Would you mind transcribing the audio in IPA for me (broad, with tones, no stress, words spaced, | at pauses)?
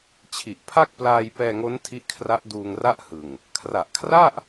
t͡ɕʰi˨˩ʔ pʰa˥˩k̚plaː˧jpɛː˧ŋo˦˥n tʰi˦˥ʔkʰra˦˥ʔduː˧ŋra˥˩ʔ hɯ˨˩ŋ | kʰra˨˩ʔkʰra˥˩ʔ